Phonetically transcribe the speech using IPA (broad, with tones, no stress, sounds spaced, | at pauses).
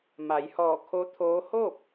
m a˩˧ j h ɔː˧˩ kʰ o˧˥ t̪ʰ oː˧˥ h o˥˨ p̚